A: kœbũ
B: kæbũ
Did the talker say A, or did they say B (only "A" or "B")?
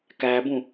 B